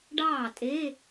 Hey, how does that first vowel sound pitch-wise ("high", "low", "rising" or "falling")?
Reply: falling